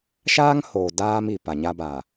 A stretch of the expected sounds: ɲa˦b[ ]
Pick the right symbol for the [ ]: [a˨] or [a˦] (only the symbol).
a˨